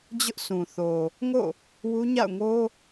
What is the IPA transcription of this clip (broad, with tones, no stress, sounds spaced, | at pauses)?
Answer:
d͡ʑ ʊ˦ ʔ s ũ˨ θ o˨ | ŋ o̰˦˨ | w u˦ ɲ a̰˦˨ ʊ̯ ŋ o˦